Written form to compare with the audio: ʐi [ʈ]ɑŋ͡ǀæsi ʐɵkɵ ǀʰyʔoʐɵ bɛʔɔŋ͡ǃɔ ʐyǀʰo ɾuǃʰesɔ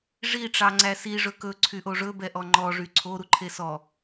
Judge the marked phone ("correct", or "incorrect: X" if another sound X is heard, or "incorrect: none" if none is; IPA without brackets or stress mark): incorrect: ʈ͡ʂ